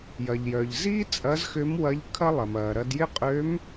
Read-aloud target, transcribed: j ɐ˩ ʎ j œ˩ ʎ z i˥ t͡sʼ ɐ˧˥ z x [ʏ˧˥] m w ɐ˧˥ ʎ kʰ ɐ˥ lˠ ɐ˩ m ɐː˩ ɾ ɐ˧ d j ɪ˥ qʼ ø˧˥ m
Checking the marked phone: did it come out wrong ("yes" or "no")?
no